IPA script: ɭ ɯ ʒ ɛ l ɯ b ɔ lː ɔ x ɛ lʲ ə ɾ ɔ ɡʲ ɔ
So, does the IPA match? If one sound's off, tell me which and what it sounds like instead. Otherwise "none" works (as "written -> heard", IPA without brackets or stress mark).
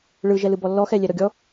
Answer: ə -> ɛ